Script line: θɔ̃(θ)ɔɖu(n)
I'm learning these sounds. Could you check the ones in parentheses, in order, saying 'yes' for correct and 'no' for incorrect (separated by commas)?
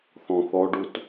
yes, no